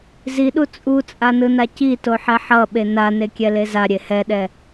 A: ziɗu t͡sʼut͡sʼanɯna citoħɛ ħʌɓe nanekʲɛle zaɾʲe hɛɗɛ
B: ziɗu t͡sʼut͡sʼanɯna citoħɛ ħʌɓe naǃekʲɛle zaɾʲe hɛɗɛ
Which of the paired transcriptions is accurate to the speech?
A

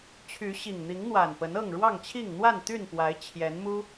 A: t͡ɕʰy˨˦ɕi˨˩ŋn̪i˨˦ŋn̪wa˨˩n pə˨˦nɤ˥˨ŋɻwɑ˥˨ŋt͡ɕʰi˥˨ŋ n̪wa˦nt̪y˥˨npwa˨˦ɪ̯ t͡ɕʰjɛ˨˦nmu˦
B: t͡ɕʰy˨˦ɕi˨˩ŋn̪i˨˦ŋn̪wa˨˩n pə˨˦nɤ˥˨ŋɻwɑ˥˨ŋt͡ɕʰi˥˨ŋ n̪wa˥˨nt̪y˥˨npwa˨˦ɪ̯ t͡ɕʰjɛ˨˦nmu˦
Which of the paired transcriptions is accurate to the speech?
B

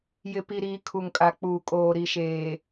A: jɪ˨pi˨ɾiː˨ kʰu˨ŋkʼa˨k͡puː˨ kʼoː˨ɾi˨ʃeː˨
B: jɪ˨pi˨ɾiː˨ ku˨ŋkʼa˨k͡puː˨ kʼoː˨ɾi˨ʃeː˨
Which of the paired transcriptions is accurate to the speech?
A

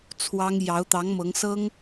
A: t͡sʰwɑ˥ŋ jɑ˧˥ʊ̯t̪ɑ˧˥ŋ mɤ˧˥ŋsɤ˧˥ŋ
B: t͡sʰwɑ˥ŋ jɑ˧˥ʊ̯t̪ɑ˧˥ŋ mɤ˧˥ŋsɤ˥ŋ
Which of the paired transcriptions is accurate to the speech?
B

